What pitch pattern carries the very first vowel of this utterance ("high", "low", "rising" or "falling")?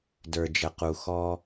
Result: low